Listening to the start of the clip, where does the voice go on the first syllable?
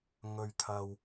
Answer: low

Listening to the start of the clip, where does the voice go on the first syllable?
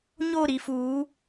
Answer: falling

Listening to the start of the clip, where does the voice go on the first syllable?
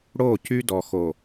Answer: falling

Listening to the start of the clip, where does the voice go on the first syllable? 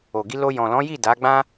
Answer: low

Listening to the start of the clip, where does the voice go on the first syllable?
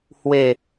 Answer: falling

